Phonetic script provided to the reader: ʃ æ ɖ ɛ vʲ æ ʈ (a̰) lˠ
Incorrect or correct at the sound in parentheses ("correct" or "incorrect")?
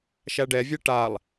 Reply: incorrect